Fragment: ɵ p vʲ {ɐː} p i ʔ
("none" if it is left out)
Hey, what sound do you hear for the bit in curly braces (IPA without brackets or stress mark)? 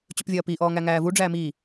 ɐː